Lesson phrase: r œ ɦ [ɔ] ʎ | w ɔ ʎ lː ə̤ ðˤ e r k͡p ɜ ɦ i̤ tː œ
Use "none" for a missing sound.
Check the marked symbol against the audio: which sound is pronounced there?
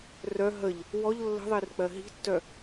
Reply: ə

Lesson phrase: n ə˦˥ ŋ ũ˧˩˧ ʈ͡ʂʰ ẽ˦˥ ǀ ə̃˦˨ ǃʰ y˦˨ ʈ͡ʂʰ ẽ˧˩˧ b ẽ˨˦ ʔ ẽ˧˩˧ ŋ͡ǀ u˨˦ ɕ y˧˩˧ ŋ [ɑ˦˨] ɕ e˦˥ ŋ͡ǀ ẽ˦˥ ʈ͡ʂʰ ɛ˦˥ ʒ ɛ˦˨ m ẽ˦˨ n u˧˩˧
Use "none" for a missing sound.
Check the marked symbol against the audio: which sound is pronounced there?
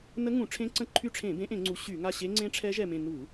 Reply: a˦˨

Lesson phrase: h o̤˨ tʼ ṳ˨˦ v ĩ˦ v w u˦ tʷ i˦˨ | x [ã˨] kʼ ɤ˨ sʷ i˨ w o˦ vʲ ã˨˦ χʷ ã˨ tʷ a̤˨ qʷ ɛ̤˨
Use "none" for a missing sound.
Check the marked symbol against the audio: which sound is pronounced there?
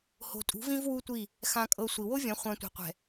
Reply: ã˨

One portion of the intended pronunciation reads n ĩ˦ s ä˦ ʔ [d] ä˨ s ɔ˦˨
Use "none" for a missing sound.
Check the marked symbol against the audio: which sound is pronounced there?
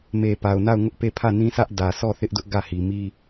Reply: d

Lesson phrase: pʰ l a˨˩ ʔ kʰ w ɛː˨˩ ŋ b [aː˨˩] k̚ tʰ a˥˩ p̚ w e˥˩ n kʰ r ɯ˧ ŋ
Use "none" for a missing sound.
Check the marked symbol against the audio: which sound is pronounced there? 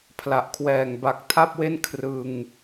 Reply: a˨˩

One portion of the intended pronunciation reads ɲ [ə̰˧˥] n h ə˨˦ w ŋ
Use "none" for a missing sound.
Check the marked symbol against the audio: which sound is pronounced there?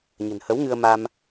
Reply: ə̤˨˩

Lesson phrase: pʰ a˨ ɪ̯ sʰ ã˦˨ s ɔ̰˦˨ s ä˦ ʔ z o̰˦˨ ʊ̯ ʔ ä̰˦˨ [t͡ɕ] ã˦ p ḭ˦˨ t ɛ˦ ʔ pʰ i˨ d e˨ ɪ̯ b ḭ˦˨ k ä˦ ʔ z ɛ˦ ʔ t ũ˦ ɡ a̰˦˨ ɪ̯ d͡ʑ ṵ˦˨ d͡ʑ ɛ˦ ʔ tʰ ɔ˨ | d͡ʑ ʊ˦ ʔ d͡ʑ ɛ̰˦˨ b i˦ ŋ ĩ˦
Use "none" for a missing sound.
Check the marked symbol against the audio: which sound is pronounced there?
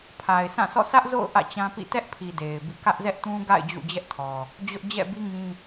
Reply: t͡ɕ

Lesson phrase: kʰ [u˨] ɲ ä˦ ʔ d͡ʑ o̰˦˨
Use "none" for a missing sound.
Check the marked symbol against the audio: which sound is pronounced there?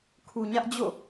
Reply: u˨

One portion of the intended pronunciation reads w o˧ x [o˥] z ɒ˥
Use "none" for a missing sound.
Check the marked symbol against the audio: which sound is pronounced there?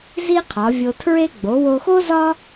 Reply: o˥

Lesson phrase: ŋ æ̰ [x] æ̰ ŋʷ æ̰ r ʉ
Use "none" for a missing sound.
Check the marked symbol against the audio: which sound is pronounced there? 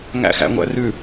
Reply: x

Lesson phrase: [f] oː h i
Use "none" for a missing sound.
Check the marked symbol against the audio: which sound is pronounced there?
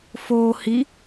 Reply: f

